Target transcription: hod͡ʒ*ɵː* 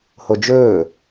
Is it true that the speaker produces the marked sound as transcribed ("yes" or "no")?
yes